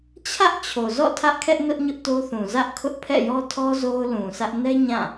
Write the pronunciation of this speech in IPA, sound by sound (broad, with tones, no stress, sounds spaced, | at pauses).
t͡ɕʰ ä˦ ʔ t͡ɕʰ o˨ z ɔ̰˦˨ tʰ ä˦ ʔ kʰ ɛ˦ ʔ n ʊ˦ ʔ ɲ ʊ˦ ʔ t o˦ θ ũ˨ z ä˦ ʔ kʰ ʊ˦ ʔ pʰ ɛ̰˦˨ j ɔ˦ tʰ ɔ˦ z o˦ ʊ̯ l ũ˨ s ä˦ ʔ n ɛ˦ ɲ ã˦˨